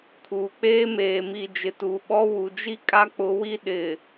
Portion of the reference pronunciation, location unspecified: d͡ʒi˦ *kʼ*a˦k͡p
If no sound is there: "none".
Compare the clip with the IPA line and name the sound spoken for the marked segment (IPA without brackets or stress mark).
kʼ